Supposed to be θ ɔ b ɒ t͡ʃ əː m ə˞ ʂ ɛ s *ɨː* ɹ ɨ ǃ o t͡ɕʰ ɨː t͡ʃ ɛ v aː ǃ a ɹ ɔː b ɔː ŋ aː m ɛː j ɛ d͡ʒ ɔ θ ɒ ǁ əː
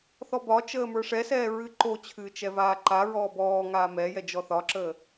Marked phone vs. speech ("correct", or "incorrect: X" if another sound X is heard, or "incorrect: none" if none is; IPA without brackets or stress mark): incorrect: ɛː